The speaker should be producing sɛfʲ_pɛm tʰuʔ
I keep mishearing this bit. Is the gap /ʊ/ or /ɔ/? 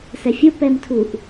ʊ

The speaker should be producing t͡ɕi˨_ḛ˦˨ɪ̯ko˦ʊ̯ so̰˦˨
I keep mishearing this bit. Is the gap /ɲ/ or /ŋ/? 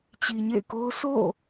ɲ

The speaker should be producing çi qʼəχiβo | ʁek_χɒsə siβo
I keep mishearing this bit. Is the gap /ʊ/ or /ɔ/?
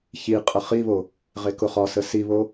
ʊ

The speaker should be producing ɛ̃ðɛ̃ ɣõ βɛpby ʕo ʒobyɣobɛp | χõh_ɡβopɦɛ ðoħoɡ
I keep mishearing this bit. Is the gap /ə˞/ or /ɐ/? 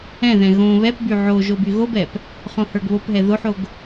ə˞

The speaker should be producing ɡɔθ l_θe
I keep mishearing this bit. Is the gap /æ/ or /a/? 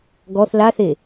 a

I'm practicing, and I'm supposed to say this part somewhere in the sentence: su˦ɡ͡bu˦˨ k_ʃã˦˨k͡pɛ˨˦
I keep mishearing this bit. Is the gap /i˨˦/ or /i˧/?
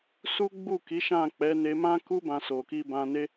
i˨˦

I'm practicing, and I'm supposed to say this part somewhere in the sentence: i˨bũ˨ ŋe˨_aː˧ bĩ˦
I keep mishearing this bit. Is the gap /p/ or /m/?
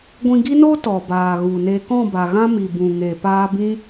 p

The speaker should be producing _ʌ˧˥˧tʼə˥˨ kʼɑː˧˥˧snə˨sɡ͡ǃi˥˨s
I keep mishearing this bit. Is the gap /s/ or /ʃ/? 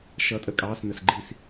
ʃ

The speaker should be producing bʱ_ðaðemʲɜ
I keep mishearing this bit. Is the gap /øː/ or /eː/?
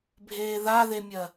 eː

